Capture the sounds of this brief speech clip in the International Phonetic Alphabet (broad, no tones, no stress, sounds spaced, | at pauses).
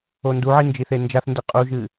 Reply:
o n d u ʕ i n d͡ʒ i θ e n d͡ʒ a θ n d e qʼ u ʒ ɨ